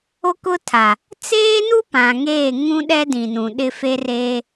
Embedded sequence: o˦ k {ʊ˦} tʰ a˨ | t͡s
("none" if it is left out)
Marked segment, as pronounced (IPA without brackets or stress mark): ʊ˦